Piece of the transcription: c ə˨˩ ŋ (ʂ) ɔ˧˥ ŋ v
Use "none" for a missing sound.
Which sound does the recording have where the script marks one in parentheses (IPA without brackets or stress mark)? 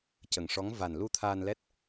ʂ